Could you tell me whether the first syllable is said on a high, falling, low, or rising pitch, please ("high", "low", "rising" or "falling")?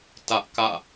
high